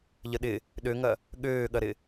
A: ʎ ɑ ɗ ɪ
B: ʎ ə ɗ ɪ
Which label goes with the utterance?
B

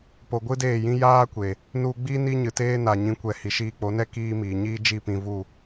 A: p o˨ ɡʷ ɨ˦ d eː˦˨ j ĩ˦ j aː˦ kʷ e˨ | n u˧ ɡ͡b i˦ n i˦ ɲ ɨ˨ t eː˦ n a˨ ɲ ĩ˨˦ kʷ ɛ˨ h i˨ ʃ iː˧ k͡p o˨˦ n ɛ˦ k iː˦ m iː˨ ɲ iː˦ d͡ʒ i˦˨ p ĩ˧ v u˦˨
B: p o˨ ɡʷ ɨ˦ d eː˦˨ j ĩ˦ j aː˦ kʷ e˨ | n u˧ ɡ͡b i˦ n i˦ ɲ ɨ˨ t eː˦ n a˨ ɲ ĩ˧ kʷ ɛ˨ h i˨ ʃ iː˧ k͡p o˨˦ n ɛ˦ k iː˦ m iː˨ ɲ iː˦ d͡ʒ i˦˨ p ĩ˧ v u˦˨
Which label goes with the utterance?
A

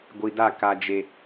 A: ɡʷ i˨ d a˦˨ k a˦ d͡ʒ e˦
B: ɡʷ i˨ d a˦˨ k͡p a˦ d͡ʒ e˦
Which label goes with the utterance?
A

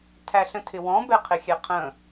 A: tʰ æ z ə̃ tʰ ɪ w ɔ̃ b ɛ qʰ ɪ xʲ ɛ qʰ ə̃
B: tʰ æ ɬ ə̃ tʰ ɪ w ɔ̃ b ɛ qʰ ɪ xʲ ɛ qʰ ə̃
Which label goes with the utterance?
B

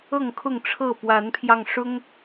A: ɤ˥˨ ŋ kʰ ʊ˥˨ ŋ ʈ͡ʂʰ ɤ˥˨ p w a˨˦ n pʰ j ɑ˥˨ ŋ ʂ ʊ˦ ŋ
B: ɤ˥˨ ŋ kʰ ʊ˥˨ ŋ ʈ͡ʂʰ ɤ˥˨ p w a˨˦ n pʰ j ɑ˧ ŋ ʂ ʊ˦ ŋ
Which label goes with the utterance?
B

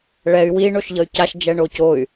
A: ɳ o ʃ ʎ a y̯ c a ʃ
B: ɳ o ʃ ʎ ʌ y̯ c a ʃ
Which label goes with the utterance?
B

